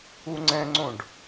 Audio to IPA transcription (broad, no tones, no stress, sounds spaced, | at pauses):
u ŋ͡ǀ ɛ̃ ŋ͡ǀ õ ɖ